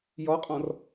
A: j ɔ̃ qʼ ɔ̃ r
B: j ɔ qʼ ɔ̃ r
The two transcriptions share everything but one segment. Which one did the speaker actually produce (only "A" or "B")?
B